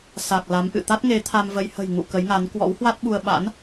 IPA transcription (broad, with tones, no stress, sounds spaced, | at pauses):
s a˨˩ k̚ l a˨˦ m ʔ ɨ̰˧˨ t̪ a˦˥ t̚ ŋ e˨˦ t̪ʰ a˧ m v ə˧ j h ə̤˨˩ j ŋ ṵ˧˨ k ə˨˦ j ŋ a˨˦ n k w ɔ̰˧˥ w h w a˦˥ t̚ ɓ u˧ ə̯ ɓ a̰˧˥ n